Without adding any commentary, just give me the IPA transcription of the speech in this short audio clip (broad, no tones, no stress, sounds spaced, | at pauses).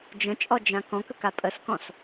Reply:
d͡ʒ ə̃ t͡ʃʼ ɔ d͡ʒ ã k ɔ̃ k ə k a pʼ ə s k ɔ̃ s